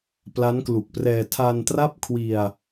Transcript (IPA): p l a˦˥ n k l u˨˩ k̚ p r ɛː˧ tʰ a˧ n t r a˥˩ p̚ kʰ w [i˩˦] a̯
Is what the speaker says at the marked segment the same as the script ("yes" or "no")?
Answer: no